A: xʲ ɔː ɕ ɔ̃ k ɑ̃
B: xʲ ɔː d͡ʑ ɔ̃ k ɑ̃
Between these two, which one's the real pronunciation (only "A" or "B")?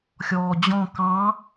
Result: B